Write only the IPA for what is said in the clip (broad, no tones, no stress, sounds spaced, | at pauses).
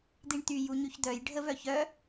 d̪ i ɳ t̪ y j u ɲ y ç d̪ œ j ɖʱ ə v œ ç œ